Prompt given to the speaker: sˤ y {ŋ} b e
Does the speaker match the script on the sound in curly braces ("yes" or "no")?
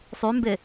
no